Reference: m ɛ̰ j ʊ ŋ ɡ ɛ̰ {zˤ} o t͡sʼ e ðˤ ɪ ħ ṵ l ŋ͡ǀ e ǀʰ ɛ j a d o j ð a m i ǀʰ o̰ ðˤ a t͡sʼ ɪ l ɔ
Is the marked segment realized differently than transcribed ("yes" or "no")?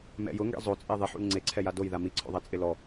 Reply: no